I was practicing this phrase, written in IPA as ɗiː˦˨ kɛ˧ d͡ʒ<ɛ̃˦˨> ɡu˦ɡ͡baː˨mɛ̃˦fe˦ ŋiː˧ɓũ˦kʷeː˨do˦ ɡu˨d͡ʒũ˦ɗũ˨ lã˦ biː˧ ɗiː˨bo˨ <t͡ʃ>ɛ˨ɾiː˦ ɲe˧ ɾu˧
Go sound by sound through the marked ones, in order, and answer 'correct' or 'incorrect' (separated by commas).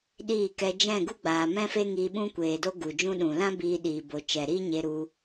correct, correct